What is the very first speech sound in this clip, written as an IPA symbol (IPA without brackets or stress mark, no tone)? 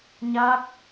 ɲ